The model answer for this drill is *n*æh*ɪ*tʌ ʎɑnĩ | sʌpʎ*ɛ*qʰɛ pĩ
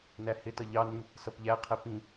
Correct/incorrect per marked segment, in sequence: correct, correct, incorrect

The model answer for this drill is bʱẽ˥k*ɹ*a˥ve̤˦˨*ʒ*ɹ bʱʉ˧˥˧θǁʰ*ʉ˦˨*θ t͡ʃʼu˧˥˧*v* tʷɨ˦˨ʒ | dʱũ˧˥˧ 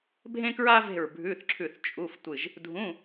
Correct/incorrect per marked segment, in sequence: correct, incorrect, correct, incorrect

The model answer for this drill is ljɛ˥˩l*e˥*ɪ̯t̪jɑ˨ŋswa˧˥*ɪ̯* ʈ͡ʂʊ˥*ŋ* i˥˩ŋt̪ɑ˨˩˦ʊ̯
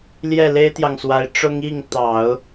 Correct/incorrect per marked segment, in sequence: correct, correct, correct

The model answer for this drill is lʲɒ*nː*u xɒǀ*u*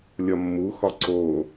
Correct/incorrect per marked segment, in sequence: incorrect, incorrect

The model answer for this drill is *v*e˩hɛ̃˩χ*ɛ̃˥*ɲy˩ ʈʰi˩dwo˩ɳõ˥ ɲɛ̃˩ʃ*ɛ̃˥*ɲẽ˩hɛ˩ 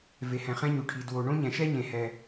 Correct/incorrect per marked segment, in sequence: correct, correct, incorrect

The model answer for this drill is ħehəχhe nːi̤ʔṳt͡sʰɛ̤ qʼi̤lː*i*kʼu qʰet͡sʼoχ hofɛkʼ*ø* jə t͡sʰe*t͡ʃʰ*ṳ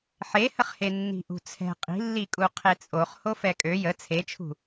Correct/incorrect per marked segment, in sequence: correct, correct, correct

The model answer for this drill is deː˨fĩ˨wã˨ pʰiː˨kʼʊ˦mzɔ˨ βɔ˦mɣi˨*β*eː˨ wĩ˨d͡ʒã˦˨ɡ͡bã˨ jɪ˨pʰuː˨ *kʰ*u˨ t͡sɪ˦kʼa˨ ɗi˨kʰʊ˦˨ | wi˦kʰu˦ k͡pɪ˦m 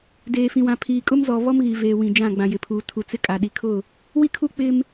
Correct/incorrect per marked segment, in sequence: incorrect, incorrect

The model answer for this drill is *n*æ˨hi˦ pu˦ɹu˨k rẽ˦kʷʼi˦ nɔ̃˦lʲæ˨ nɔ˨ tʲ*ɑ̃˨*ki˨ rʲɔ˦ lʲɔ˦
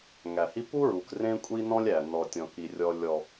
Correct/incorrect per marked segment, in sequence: incorrect, incorrect

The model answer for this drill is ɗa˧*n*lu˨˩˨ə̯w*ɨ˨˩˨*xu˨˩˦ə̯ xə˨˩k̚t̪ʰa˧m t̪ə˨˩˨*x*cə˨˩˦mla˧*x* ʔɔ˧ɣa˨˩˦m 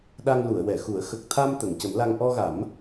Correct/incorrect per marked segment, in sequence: incorrect, incorrect, incorrect, incorrect

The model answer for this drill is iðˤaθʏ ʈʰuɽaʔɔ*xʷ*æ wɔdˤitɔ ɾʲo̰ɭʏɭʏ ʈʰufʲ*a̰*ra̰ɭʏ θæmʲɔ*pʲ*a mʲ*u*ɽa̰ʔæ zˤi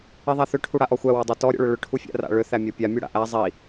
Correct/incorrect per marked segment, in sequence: correct, incorrect, correct, correct

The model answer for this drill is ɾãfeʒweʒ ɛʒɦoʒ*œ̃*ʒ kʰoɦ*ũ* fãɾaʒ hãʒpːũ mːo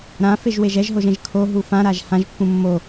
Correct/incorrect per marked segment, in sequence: incorrect, incorrect

